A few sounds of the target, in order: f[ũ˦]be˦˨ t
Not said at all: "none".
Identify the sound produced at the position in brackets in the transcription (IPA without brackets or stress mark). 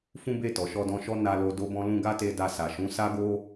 ũ˦